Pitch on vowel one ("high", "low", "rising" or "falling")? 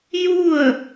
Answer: falling